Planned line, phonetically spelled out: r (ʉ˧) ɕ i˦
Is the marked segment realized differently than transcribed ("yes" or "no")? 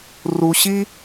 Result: yes